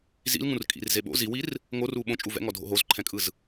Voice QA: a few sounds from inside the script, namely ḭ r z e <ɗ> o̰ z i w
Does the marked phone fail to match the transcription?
yes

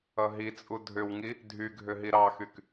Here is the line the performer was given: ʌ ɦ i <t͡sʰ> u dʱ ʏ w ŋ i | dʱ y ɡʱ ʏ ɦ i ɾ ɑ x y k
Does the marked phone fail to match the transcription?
yes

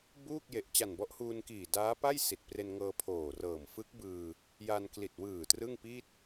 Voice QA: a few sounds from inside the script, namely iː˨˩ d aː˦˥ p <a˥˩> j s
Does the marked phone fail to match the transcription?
no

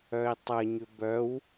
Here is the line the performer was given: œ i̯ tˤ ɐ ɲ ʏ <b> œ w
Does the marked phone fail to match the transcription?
no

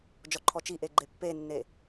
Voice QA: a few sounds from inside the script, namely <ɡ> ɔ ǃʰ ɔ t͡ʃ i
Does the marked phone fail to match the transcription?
yes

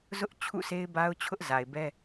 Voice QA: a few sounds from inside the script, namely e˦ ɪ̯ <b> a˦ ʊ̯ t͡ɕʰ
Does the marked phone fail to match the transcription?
no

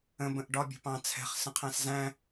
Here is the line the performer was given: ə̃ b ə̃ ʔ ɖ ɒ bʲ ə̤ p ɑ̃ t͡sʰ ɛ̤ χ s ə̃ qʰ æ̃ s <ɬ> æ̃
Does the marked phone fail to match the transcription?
yes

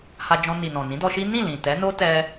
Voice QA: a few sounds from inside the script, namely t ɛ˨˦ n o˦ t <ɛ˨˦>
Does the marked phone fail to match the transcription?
yes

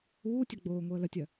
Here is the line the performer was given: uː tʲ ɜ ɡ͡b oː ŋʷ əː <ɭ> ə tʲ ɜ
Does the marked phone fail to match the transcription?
yes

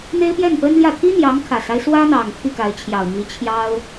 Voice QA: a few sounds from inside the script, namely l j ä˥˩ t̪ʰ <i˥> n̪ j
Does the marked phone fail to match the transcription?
no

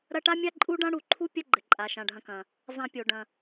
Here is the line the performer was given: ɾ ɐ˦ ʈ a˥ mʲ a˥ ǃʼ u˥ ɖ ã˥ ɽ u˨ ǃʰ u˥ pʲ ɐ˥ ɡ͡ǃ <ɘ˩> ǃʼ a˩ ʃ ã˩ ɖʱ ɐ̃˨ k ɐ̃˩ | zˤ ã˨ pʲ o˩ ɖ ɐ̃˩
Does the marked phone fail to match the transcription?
no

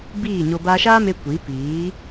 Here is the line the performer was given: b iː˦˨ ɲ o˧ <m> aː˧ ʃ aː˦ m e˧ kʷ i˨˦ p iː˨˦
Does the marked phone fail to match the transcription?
yes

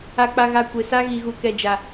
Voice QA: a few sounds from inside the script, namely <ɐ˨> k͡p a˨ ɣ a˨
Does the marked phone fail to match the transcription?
yes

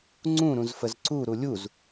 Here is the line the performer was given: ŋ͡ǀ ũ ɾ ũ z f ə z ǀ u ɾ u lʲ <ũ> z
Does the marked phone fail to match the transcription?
yes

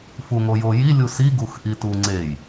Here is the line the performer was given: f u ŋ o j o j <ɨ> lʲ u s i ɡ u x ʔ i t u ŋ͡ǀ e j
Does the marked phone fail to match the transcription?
yes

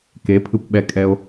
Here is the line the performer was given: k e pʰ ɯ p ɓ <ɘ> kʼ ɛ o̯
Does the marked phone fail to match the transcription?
yes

